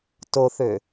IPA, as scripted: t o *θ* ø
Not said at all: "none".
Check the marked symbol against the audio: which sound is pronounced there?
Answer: θ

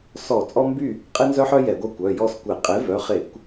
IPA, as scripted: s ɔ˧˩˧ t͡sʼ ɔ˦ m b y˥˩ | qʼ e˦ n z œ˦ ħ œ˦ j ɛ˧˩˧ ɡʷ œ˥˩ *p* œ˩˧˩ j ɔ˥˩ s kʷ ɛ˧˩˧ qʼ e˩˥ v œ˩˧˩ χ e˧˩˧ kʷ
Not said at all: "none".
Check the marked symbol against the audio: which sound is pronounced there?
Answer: kʷ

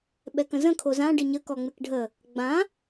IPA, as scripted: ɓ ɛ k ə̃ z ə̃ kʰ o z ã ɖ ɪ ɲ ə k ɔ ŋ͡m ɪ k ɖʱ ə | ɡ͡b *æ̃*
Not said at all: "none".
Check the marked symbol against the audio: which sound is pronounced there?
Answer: ã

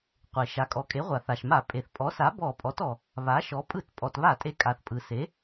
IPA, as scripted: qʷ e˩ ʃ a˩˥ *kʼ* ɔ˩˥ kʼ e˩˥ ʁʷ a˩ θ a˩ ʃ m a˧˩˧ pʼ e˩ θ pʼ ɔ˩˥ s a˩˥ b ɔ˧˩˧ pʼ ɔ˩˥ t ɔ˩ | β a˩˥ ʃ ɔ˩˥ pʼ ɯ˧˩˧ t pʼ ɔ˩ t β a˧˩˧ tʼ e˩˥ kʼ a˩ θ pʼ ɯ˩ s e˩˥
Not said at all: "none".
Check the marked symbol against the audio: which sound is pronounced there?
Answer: kʼ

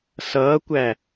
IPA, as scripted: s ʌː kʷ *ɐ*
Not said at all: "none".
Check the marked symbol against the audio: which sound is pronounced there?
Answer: æ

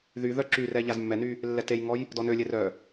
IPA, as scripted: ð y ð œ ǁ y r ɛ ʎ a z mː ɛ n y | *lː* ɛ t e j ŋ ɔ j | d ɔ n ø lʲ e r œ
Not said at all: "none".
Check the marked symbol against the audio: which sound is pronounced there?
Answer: lː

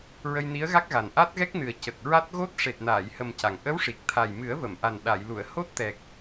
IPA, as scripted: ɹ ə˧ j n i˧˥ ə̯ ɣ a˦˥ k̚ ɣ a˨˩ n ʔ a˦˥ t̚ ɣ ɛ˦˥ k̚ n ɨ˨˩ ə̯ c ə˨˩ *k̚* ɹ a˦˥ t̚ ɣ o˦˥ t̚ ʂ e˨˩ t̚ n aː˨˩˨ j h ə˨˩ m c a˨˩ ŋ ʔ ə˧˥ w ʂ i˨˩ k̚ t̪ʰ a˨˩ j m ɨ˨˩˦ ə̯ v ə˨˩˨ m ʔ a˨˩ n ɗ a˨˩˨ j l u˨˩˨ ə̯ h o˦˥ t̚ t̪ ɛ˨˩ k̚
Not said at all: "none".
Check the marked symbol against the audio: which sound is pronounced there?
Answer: k̚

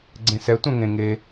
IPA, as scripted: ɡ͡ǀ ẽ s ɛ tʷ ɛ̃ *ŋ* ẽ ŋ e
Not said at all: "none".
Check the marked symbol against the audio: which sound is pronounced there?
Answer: ŋ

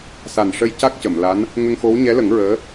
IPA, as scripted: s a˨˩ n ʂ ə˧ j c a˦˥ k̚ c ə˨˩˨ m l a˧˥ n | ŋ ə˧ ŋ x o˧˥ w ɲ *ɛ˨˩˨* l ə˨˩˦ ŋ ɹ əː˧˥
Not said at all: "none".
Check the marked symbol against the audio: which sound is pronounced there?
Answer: ɛ˧˥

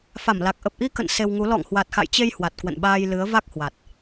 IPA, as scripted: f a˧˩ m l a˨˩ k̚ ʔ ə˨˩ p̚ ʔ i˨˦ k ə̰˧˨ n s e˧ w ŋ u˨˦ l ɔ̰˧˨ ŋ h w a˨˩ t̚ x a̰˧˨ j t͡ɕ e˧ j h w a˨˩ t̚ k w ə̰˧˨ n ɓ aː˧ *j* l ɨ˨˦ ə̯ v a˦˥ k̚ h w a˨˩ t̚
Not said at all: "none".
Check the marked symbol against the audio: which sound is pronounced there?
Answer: j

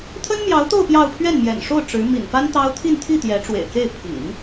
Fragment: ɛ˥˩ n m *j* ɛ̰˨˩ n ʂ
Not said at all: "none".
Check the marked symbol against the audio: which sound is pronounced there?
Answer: j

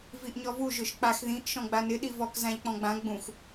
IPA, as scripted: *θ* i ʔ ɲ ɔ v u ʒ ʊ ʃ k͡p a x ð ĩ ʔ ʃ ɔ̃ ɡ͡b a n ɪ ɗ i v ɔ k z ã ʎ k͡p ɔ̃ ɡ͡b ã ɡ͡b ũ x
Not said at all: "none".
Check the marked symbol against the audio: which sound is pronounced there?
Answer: v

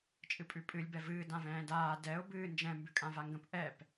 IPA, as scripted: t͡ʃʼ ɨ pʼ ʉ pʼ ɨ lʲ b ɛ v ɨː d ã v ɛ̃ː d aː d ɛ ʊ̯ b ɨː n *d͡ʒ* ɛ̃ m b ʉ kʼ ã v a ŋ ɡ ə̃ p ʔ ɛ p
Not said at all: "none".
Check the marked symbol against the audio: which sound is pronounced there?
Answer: d͡ʒ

